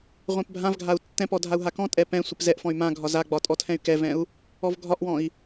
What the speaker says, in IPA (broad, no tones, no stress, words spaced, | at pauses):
ʁʷɛ̃pbʱãvɡʱau̯ tːɛ̃pɔ dʱau̯ɦakɔ̃tʼɛ pɛ̃ sʷɛpzɛʔfɔ̃y̯ mãɡʱɒ zaɡ͡bɒ tʼɔtʰɛ̃y̯kɛvɛ̃u̯ | ɔvɡʱɒʔwɔ̃i̯